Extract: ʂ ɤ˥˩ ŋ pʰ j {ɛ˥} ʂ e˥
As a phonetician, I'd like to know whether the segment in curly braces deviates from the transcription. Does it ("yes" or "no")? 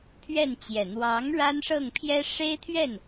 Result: no